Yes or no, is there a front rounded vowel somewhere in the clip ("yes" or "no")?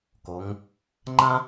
no